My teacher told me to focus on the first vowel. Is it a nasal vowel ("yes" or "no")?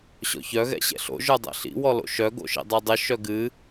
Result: no